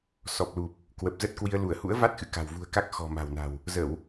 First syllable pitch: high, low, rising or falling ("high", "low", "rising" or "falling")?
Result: low